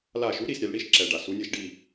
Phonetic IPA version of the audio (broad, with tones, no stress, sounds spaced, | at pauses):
l a˧˩ ʃ u˨˥ ɾ i˧˩ s ɾʲ ɛ˩˧ l ɽ i˥ ʃ ǁ ɛ˩ ɖ a˩ s u˩˧ nʲ ɘ˧˩˧ ʃ ɖ i˧˩